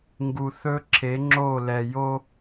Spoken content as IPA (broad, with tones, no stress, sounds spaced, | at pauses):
ŋ ɡ u˨ θ ɵ˦ ǁʰ e˨˦ ŋ͡ǁ o˦˨ l ɛ˨ j o˦